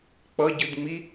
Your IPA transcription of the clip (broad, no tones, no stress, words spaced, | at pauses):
k͡pʌ ɟɯdŋ͡mi